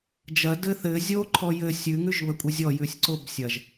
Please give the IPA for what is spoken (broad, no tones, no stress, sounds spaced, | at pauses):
d͡ʒ ɐ d ɘ θ ɘ zʲ o ǃʰ ɔ j ɘ sʲ ʉ ŋ ʉ ʒ β ə kʷʼ ɐ zʲ ɔ j ʉ sʲ ǀ o b sʲ ɐ ʒ